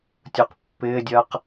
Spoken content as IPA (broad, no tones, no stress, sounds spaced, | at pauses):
tʲ u q pː ɪː dʲ ɜ q